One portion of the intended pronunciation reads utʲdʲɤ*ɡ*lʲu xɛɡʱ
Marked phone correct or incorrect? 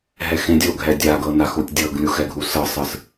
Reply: correct